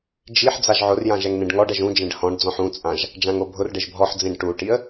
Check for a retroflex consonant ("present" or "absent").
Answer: present